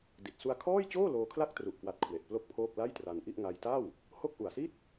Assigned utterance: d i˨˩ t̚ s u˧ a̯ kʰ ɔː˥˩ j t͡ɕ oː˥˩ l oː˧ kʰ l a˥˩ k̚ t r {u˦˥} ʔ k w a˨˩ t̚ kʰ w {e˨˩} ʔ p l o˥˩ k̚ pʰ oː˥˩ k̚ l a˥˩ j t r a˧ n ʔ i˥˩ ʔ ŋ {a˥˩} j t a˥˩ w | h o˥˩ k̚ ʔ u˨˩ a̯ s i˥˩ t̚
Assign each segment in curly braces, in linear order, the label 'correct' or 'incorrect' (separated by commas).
incorrect, correct, incorrect